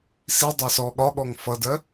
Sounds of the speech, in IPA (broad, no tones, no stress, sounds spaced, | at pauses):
s i dˤ ɛ s ɔ ɠ ɒ ɠ ɔ ŋ f ʌ d ɜ